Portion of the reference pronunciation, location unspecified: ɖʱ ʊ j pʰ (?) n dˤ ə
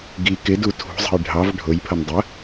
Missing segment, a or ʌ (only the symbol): ʌ